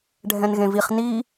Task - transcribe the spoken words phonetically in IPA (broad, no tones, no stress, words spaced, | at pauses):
ɖʱɛ̃nɣẽviχ ni